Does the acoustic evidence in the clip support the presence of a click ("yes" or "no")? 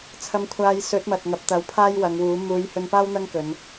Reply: no